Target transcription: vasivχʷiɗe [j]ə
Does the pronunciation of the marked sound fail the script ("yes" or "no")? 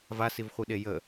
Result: no